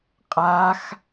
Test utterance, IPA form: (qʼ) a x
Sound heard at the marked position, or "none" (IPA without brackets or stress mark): qʼ